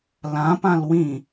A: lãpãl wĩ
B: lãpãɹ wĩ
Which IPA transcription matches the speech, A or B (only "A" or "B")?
A